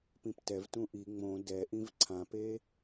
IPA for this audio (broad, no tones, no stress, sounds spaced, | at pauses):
p ĩ p t ɛ v t ũ ʔ i ŋ͡m õ d ɛ ʔ ĩ v ǀʰ ã p e